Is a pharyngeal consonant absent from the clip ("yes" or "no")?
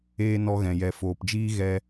yes